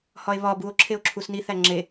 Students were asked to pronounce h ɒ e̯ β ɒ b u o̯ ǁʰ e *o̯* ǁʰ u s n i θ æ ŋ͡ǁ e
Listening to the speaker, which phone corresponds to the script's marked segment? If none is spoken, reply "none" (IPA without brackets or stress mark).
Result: o̯